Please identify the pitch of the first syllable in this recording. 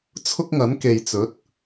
high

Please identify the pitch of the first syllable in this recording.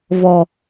low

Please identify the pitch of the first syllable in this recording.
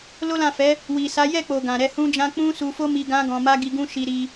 high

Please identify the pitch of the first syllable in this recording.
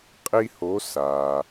high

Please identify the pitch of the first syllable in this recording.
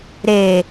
low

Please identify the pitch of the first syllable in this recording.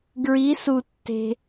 rising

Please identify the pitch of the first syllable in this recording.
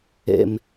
low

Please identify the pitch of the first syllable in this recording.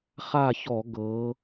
falling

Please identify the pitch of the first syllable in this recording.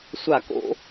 falling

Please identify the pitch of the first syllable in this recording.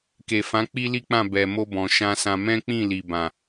low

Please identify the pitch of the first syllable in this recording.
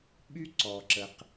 high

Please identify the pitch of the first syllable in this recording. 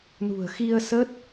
low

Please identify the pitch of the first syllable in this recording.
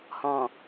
low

